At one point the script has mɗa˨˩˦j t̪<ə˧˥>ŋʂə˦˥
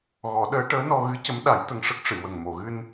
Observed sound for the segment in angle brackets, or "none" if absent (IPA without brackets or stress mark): ə˧